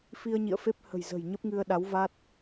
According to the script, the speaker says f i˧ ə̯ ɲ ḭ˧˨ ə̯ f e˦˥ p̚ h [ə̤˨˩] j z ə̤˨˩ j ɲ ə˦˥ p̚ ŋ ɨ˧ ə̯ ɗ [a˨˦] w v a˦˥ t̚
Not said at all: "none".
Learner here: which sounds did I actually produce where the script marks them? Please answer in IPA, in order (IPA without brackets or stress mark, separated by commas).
ə̤˨˩, a˨˦